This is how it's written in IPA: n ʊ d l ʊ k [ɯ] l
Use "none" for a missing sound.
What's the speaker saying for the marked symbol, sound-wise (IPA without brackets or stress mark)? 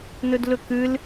ɯ